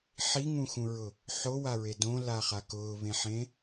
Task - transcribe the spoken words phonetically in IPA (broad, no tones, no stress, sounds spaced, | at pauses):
ħ i ŋ ũ x ũ ɹ ʊ | ħ o w a ɹ e d õ l a χ a k ʊː β ẽ ħ ẽ